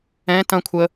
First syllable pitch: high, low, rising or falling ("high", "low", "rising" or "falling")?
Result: high